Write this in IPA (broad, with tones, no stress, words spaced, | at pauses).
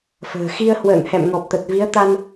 fə̤ː˨˩ xi˧ə̯hwə̰ː˧˨ŋhɛ̰˧˨m ŋɔ˨˩p̚t̪ə˨˩t̚vi˨˦ə̯t̪a˧n